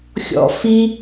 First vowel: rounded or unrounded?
rounded